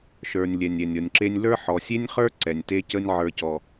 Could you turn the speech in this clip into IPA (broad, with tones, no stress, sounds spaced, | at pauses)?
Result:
ʃ ə˞˨ nʲ lʲ ɛ˨ nʲ ɛ˨ nʲ ɔ˨ nʲ ǁ e˦ nʲ l ə˞˦ ħ ɔ˨ sʲ e˦ nʲ χ ə˞˦ ǀ ɛ˨ nʲ t e˦ c ə˦ nʲ ʕ ə˞˨ c ɔ˨